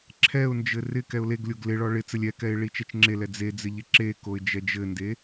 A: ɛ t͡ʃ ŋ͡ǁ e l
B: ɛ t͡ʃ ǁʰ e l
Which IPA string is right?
A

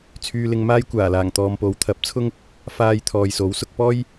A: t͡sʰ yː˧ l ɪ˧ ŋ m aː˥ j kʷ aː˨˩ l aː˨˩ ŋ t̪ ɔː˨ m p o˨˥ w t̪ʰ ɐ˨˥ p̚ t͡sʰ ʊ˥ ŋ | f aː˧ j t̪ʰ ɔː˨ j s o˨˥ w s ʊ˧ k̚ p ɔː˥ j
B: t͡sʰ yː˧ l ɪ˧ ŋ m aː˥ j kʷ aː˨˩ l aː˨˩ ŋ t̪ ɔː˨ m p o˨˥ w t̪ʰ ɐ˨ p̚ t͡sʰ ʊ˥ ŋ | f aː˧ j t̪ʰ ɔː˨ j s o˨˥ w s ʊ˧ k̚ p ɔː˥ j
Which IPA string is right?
A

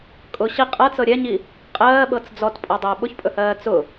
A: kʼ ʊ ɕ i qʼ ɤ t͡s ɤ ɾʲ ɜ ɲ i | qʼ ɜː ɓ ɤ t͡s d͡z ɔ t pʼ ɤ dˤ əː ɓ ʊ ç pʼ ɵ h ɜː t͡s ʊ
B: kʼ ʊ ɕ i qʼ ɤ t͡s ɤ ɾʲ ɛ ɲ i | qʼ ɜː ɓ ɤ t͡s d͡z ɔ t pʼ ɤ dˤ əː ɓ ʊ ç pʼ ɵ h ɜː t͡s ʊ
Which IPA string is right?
B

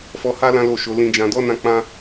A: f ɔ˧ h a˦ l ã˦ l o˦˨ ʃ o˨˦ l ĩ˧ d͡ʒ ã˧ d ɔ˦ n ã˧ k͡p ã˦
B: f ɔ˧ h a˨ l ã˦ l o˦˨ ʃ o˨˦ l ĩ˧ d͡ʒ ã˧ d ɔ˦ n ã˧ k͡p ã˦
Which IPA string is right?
A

